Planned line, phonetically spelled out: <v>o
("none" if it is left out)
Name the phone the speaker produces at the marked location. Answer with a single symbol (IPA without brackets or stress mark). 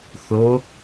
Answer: θ